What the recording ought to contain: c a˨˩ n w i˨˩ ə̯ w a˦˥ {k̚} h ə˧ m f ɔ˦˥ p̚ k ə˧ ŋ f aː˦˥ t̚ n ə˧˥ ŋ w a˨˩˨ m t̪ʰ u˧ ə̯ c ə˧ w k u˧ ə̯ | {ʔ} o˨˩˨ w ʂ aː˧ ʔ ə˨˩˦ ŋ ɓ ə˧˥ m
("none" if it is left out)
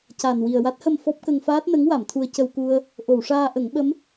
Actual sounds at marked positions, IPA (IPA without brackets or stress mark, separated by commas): t̚, ʔ